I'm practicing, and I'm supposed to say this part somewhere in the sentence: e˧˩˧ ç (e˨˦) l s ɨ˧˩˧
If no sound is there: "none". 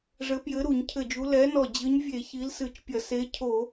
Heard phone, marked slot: i˨˦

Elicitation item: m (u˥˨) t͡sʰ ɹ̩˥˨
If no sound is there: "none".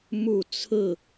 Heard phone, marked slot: u˥˨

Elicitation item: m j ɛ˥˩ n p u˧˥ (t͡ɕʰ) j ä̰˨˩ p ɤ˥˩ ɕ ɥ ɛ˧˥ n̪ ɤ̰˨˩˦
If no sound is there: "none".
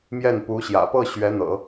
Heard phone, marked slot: ɕ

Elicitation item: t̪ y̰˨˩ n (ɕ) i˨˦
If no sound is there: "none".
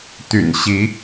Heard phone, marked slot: ɕ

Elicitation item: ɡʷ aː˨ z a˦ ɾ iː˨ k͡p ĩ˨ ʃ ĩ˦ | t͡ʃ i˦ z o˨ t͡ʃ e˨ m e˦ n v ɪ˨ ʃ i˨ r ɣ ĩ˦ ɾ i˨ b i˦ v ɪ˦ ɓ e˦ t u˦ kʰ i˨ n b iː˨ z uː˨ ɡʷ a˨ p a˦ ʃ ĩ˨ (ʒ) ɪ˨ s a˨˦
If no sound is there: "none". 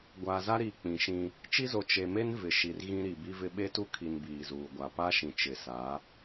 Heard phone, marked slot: t͡ʃ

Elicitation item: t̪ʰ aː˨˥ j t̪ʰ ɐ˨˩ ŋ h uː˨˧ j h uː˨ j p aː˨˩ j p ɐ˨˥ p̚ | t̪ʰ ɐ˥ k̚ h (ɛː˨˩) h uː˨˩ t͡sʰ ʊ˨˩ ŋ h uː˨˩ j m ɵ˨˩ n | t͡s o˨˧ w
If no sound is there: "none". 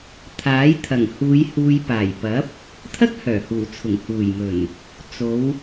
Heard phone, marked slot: œː˨˩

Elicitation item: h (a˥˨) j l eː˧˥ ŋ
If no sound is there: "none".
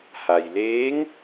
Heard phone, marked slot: a˩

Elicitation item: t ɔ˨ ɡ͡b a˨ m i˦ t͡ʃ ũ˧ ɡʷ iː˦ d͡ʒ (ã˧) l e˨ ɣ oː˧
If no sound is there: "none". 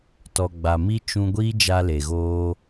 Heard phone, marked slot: a˧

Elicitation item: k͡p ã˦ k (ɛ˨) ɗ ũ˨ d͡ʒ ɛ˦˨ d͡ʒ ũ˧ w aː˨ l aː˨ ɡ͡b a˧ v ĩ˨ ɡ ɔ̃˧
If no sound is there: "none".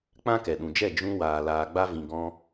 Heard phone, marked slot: ɛ˨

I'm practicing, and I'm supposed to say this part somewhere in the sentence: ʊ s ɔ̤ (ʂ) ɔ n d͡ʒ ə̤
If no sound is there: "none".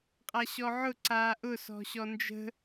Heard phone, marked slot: ɕ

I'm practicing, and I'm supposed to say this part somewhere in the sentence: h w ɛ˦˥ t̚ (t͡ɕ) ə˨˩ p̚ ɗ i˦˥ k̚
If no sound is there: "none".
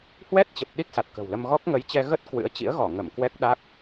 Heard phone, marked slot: t͡ɕ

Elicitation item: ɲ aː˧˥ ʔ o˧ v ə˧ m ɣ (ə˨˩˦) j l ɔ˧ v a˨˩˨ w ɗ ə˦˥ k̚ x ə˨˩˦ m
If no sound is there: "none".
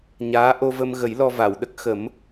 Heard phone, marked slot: ə˨˩˦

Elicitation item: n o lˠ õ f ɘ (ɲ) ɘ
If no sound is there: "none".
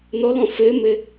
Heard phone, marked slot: m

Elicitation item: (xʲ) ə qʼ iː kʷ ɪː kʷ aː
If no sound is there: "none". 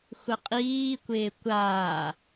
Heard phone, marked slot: xʷ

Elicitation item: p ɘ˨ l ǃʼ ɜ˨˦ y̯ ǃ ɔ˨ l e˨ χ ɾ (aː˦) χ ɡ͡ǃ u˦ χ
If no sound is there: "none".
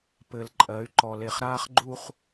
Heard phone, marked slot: aː˦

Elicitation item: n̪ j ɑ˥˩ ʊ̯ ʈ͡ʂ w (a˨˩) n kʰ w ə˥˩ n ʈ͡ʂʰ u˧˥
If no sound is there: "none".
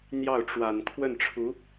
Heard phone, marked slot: a˨˩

